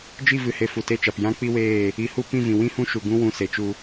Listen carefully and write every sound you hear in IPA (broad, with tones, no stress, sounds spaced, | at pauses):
d͡ʒ i˦˨ v ɨ˨ h e˨ f u˨ t e˦˨ t͡ʃ a˨ p j ã˦ k͡p i˦ w eː˦˨ | i˨ h u˧ p ĩ˦˨ v ĩ˨ w ĩ˧ h ũ˧ ʃ u˨ ɡ ũ˦ w ũ˧ s e˨ t͡ʃ u˧